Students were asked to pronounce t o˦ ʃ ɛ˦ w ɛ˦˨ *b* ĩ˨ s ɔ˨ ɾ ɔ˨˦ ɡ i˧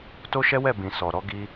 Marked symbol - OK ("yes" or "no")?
yes